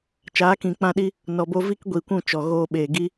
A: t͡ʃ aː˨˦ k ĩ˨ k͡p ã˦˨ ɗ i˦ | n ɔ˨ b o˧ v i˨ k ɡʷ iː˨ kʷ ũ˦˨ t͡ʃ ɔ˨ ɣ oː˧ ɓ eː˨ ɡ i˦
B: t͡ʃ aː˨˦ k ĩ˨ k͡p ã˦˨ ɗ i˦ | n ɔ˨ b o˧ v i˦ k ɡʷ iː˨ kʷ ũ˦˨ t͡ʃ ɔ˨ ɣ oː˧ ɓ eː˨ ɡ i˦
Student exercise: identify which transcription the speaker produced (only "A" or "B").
B